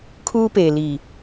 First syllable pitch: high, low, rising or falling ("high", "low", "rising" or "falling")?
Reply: high